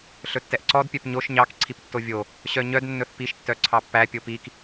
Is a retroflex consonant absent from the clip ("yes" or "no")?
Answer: yes